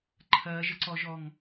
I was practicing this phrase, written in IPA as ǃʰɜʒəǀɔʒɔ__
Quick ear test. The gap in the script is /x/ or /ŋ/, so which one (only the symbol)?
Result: ŋ